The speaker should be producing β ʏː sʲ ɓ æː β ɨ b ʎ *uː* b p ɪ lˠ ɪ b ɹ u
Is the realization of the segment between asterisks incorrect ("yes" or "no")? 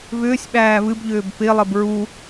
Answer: yes